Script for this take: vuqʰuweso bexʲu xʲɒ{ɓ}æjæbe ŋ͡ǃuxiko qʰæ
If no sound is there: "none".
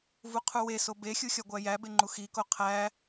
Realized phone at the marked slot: ɡʷ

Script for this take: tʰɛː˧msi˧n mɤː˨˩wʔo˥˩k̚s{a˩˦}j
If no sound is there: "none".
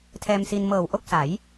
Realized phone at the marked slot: a˩˦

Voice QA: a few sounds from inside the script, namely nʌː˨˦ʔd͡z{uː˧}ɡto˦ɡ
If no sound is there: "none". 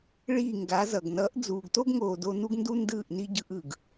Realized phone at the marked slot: uː˨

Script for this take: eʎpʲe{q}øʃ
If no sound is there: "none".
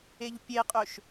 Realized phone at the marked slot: qʼ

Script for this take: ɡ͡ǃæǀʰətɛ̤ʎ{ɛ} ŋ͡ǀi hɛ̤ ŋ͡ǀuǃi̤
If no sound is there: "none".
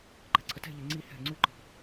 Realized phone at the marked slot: ɛ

